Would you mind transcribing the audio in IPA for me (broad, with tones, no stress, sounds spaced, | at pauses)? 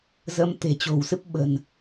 z ə˨˦ m t̪ e̤˨˩ t͡ɕ o̤˨˩ w s ɨ˦˥ p̚ ɓ ə̤˨˩ n